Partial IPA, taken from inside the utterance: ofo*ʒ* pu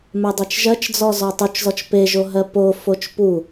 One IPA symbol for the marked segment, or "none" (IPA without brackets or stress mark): t͡ʃ